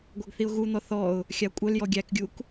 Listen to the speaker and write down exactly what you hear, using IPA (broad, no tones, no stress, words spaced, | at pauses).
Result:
ɡʷaɡθiʊ̯ɣun̪ɔ θɔʊ̯ | xʲakʷʼœljɔ ɡʲækɡʲuk